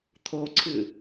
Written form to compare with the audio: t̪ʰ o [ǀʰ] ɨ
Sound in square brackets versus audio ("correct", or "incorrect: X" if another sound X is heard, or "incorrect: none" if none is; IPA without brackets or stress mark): correct